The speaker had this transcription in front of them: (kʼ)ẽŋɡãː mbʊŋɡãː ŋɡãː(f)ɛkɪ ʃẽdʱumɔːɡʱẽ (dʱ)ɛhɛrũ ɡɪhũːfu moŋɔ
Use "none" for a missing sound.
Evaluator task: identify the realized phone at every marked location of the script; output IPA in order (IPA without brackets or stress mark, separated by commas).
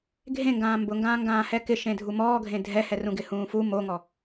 ɡʱ, h, dʱ